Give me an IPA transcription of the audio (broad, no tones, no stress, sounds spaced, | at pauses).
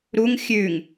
ɾ u ŋ xʲ ʉ ŋ